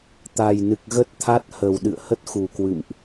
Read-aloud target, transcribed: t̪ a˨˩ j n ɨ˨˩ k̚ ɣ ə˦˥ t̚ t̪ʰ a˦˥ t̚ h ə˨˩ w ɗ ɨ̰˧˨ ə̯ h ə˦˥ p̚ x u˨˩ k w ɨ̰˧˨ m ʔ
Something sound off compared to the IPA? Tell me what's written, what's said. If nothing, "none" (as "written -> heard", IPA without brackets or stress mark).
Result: p̚ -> t̚